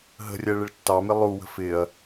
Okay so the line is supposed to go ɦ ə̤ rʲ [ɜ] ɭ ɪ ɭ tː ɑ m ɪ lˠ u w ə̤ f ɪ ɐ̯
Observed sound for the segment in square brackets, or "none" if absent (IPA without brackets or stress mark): ɜ